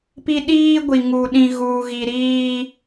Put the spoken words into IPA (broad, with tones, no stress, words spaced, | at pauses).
pi˦ɗiː˦ɡʷi˨ ŋu˨ɗĩ˨ɣuː˨ɣi˨ ɾiː˦